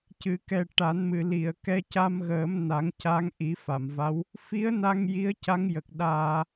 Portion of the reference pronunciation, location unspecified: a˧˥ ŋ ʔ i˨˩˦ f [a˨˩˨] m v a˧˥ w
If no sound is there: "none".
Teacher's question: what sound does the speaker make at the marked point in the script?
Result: a˨˩˨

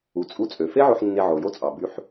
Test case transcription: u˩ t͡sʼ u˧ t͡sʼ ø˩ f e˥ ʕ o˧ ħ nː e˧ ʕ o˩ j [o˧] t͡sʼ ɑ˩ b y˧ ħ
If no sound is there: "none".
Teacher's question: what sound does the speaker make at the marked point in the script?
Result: o˥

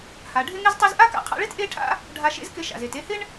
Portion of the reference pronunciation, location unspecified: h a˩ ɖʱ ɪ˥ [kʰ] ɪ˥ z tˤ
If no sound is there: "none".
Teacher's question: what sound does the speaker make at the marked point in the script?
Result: ŋ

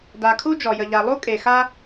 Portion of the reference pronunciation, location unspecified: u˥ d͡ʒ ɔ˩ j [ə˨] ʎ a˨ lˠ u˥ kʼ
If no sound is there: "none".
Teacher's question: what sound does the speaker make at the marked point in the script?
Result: ə˨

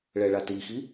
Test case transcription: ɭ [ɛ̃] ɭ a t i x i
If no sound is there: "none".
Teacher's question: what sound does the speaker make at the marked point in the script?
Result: ɛ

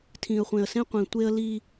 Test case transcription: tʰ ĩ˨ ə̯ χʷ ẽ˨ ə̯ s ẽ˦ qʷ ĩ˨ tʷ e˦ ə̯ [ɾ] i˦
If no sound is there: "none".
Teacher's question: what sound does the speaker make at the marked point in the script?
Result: l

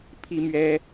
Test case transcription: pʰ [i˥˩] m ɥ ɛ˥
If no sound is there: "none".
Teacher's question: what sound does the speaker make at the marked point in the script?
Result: i˥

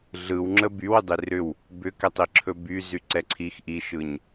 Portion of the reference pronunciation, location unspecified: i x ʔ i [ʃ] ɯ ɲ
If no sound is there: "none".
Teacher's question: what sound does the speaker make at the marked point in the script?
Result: ʃ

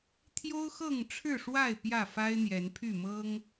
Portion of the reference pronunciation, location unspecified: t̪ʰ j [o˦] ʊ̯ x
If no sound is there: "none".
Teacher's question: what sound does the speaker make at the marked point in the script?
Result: o˦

